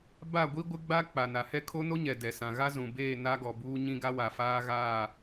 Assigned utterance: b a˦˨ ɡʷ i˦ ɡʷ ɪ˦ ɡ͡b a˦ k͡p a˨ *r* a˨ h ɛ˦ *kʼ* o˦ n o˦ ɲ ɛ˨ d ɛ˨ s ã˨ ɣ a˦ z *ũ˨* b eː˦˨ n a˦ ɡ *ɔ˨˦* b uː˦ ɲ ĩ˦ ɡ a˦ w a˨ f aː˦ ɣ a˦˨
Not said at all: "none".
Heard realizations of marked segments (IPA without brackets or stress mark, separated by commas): n, kʰ, ũ˨, ɔ˨